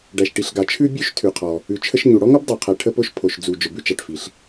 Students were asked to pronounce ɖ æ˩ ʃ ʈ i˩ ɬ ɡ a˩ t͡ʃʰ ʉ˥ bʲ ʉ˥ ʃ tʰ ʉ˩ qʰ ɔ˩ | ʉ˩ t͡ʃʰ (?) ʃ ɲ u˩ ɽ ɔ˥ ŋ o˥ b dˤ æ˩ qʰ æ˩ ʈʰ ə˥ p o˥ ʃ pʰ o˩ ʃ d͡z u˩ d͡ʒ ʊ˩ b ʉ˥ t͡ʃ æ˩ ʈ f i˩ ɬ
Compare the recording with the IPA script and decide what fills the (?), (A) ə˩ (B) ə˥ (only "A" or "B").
B